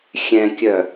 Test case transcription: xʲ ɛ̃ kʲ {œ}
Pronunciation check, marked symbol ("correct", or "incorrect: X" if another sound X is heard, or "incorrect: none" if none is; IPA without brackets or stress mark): correct